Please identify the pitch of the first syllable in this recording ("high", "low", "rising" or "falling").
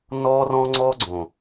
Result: high